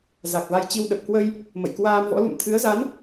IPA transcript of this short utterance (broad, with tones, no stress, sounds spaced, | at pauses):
z a˨˩ k̚ v a˧ j t͡ɕ i˧ w ɗ ə˨˩ p̚ k w ə˧ j | m ə̰˧˨ j k w aː˧ m v ɔ̰˧˥ l ṵ˧˨ m t̪ʰ ɨ˨˦ ə̯ z a˨˦ n